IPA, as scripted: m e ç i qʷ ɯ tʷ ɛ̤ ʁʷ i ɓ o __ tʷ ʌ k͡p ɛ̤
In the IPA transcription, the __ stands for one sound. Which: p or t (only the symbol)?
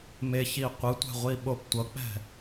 p